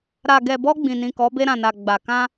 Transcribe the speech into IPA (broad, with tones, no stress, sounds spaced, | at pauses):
ɾ a˨ ɡ ɛ˨ b ɔ˧ ɡ͡b ĩ˨ n ĩ˨ k ɔ˨˦ b e˧ ɾ ã˨ n a˨ ɡ͡b a˨ k ã˧